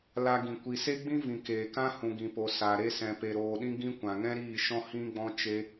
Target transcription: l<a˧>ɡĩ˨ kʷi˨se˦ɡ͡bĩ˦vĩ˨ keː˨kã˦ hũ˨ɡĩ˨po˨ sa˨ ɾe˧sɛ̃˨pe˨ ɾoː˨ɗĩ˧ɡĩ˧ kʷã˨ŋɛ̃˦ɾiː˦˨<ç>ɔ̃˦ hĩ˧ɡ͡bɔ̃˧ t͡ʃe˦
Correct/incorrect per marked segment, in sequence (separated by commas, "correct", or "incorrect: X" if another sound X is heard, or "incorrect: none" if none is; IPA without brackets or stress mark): correct, incorrect: ʃ